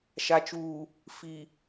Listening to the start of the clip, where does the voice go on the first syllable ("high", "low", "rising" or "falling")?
low